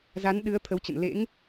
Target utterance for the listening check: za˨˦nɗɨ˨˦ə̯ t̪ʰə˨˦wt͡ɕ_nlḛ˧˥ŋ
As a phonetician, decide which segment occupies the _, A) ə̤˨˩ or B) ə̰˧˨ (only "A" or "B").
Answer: B